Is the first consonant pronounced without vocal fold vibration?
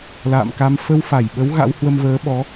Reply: no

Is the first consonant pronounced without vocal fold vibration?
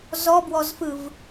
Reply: no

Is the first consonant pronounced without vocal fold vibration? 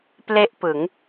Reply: yes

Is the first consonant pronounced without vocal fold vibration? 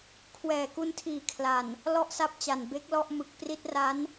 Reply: yes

